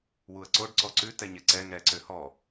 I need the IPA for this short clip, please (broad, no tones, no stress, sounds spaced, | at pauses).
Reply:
w u ə̯ ǀ o ɖ ǀ ɔ ǀ ʉ t ɛ ɲ ɛ ǀ ɛ ŋ ɛ ǀ ø h ɔ